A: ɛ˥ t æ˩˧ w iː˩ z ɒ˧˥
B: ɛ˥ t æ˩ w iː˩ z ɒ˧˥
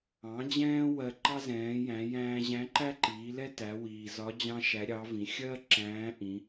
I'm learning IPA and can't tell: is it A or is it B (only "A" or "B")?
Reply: A